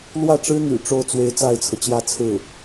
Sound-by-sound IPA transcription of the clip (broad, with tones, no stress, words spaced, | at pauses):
lwä˥˩ʈ͡ʂɻ̩˥n̪y̰˨˩ ʈ͡ʂo˥˩ʊ̯t͡swe˧˥ɪ̯ t͡sa˥˩ɪ̯t͡sʰɤ˩t͡ɕjä˥˧t͡sʰɹ̩˥˩